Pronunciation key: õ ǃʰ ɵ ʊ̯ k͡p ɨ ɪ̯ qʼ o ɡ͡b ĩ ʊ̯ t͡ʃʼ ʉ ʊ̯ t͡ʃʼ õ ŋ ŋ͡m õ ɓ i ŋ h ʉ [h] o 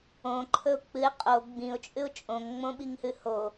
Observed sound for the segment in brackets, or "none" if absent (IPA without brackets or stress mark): h